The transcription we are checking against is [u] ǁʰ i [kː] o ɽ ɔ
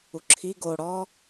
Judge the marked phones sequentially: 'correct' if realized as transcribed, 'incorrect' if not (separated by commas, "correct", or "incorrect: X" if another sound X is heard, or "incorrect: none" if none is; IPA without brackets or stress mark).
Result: correct, incorrect: ɡ